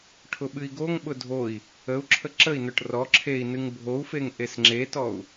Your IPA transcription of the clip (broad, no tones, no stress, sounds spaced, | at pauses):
ʈʰ ʊ ɓ ɨ i̯ ɡ o ŋ ɓ ʊ dʱ o i̯ | ə u̯ ǁʰ ə ǁ ə i̯ n ʊ ʈ r ɔ ǁʰ e i̯ n ɨ ŋ bʱ o u̯ f e ŋ ʔ e s ŋ͡ǁ e t ɔ u̯